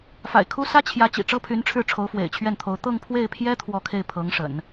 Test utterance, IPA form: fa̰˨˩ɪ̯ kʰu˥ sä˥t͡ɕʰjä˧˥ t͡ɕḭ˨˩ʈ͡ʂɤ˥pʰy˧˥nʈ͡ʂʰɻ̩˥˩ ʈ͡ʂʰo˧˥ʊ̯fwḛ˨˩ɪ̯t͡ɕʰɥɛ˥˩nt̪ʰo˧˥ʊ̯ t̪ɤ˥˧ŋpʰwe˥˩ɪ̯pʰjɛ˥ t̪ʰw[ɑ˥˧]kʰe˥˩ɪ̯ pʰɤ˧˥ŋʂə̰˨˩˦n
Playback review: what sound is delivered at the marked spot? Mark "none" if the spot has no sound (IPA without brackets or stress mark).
ɔ˥˧